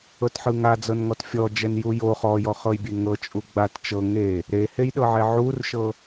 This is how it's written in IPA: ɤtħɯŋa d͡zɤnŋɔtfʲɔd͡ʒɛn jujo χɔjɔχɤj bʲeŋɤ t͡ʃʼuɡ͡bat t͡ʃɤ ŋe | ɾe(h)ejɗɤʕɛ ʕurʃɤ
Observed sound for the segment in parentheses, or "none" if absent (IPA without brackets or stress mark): h